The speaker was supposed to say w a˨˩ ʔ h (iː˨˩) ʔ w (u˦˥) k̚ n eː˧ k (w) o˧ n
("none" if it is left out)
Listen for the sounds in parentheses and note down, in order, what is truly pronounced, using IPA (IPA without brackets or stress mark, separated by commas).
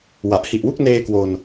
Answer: i˨˩, u˥˩, w